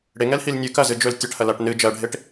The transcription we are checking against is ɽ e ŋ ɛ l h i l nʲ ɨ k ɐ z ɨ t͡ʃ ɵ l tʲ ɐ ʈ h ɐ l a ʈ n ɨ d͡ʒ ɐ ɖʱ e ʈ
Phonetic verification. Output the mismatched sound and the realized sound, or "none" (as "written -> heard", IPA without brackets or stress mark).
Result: t͡ʃ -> d͡ʒ